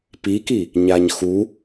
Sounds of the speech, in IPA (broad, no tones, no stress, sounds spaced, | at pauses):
p i k i | ɲ a ɲ x u